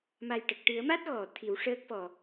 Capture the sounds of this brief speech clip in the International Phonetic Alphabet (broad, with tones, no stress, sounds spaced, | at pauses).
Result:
m a˨˩ j ʈ ə˨˩ k̚ ʈ ɨ˨˩˦ ə̯ m a˦˥ t̚ ɣ ɔ˨˩˨ t̪ʰ i˨˩˦ w ʂ əː˦˥ k̚ f ɔ˨˩